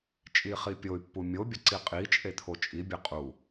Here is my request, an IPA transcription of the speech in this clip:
t͡ʃʼ i χ i pʲ o y̯ pː u mʲ o bʲ ə ǀ i qʼ i t͡ʃʼ e t̪ʰ o t͡ʃʼ i bʲ e qʼ u

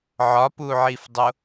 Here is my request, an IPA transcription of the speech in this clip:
ʕ ɒ p u ʕ i f dˤ o

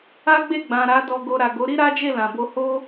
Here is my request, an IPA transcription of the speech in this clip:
a˦ ɡ͡b e˦˨ ɡ͡b ã˨ ɾ a˨˦ d ɔ˧ ɡ o˧ ɾ a˨ ɡ o˨˦ ɾ i˦ ɾ a˦ d͡ʒ e˦˨ l ã˨ b o˧ h o˦

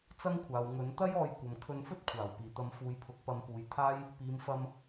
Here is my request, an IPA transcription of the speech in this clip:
t͡s ɐ˥ ŋ kʷʰ aː˨ w ŋ ɵ˨˥ n t̪ ɐ˥ j ɔː˧ j kʷ ɐ˨ m kʰ ɵ˧ n f ɵ˥ t̚ kʷʰ aː˨˩ w p iː˨˩ t̪ ɐ˨˧ m f uː˨˧ j pʰ ʊ˨˥ k̚ p ɐ˨˧ m p uː˨ j t̪ʰ aː˥ j | p iː˨ m f ɐ˧ m

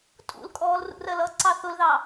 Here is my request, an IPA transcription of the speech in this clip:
tʼ ṵ l kʼ ɔː l r ṵ r ɜ l ʌ ǀ ɑ θ ʊ l ð ɑ

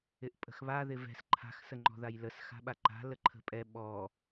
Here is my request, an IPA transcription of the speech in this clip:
ɪ ʔ pʼ ə̤ x β a ð ɪ v ɛ̤ s ǃʰ a̤ x s ə ŋ͡ǃ ɔ̤ ð a j l ə s x a̤ ɓ a ǃ a̤ l ə ǃʰ ə̤ pʼ ɛ ɓ ɔ

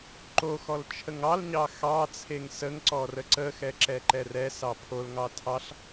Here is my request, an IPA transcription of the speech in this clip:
ǃ o x ɔ l t͡ʃʰ ə ŋ ɑ l ɲ ɑ x ɑ t͡sʰ e ŋ s ə ŋ ǀ ɔ r ə ǀ ə x ɛ ǁ ɛ ǃ ɛ r ɛ s ɑ pʰ o l ŋ ɑ tʰ ɑ ɬ

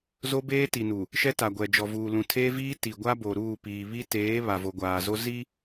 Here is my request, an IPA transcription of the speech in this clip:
z o˦ b eː˦ t i˨ n u˨ | ʃ ɛ˦ t a˨ ɡʷ ɛ˨ d͡ʒ ɔ˨ v uː˨ l ũ˨ tʰ eː˦ v iː˦ t i˨ ɡʷ a˦ b o˨ ɾ uː˦˨ p iː˨ β i˦ t eː˨˦ β a˨ v o˨ ɡʷ aː˨ z o˦ z i˦

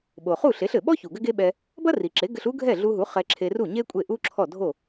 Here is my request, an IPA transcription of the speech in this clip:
ɓ o˩ χ u˥˩ ɬ e˩˥ ɬ ɘ˩ ɓ ɔ˥ ç u˩ ɡ ɘ˥ ɡ e˥ ɓ ɛ˧ | b ɐ˥ r i˩ ǁ e˩˥ ɡ ɘ˧ ɬ u˥ ɡʱ ɛ˥˩ ɮ u˧ ɦ u˩˥ χ ɛ˧ ǁʰ e˧ r u˥˩ ɲ e˥ kʷʼ e˥˩ ʔ u˥ ǁʰ ɔ˥˩ dʱ o˥˩

